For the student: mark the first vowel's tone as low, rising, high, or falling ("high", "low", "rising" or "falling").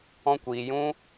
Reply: high